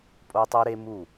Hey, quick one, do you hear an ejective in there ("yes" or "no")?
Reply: yes